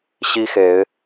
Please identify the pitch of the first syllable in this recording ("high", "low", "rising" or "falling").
high